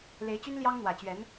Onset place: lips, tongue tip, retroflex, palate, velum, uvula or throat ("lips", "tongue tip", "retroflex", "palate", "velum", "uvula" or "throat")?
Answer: tongue tip